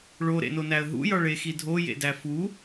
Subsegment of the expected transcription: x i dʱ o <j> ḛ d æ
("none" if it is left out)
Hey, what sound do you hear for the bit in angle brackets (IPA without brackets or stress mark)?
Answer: j